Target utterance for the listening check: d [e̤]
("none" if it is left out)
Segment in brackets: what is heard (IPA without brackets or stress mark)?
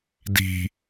i̤